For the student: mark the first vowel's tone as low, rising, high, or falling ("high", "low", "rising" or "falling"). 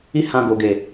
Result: high